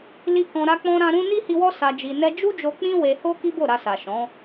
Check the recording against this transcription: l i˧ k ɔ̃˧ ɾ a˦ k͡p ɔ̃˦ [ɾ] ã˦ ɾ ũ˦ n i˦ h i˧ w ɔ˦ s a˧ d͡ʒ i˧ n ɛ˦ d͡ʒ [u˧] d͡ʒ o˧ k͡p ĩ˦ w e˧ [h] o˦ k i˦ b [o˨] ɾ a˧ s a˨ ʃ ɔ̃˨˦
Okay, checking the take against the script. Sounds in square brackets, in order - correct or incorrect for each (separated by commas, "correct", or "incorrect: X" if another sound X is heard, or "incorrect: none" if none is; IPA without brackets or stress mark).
correct, incorrect: u˦, correct, incorrect: o˦˨